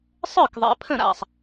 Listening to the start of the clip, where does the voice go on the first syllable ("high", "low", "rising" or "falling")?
falling